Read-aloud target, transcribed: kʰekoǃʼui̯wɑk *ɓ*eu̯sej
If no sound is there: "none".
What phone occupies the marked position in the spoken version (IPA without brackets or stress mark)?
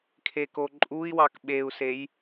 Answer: ɓ